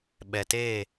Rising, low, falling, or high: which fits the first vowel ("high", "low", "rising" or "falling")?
low